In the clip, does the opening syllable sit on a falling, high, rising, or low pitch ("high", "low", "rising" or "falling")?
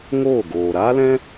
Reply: falling